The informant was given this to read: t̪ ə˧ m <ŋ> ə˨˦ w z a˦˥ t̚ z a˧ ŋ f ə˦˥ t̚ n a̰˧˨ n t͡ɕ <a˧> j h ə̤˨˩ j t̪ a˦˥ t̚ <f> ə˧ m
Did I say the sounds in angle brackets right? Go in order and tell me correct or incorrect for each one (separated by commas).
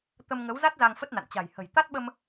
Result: correct, incorrect, incorrect